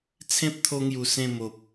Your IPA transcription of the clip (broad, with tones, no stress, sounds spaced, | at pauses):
t͡sʰ ẽ˦ p̚ t̪ʰ o˧ ŋ j u˨˩ s ẽ˥˧ m o˨ p̚